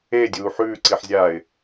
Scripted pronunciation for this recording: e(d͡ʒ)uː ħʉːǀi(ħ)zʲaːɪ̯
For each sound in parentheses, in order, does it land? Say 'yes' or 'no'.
no, yes

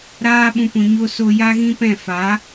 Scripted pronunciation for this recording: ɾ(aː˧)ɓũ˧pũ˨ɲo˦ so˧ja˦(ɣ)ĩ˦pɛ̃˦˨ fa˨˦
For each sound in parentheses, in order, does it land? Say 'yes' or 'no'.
no, yes

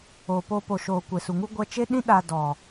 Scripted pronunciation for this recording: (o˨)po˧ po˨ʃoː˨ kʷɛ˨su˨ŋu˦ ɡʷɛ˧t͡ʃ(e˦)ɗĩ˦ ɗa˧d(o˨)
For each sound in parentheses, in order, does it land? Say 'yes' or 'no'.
yes, yes, no

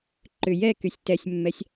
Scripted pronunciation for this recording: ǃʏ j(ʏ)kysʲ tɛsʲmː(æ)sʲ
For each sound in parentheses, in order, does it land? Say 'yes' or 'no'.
no, no

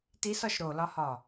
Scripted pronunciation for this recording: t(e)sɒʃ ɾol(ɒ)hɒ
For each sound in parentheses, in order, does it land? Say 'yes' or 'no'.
no, yes

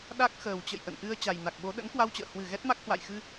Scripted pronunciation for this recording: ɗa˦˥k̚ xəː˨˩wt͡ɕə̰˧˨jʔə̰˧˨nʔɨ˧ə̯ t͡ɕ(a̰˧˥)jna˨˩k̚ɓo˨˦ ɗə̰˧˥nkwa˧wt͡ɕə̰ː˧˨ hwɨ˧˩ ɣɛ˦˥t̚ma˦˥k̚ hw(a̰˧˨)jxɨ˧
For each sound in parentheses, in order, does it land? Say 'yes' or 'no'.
no, yes

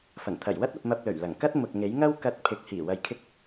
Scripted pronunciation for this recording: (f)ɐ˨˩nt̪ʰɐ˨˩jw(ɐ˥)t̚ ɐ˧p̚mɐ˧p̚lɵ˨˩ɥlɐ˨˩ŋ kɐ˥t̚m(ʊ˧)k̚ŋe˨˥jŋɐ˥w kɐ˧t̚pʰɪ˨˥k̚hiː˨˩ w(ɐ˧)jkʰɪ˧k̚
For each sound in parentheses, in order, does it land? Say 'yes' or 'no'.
yes, yes, no, no

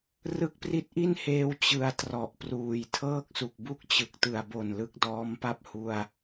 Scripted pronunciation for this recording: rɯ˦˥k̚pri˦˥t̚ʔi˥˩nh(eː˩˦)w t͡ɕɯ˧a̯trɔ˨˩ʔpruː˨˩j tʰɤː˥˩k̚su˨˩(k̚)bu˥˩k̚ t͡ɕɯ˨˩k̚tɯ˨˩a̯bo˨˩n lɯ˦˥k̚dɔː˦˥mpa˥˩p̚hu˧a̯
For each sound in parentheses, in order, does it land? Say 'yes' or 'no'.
no, yes

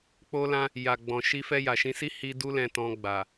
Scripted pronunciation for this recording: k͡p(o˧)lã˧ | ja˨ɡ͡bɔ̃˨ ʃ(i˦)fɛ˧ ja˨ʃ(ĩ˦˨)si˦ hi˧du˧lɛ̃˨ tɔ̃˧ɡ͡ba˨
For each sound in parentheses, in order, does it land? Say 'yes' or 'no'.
yes, no, no

